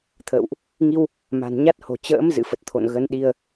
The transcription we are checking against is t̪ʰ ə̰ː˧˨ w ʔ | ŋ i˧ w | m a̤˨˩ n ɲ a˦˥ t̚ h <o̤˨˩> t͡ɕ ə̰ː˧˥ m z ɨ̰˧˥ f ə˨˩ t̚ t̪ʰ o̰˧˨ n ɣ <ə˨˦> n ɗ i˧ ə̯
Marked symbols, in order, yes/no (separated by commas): yes, yes